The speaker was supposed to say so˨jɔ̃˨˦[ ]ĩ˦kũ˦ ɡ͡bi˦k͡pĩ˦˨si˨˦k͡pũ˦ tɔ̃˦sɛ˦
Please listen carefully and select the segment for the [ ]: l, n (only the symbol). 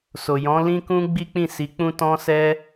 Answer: l